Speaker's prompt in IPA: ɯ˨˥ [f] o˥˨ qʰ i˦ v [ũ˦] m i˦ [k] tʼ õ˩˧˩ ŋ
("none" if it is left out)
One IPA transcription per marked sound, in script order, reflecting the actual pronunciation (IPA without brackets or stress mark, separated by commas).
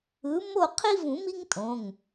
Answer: m, ũ˨˩˦, ŋ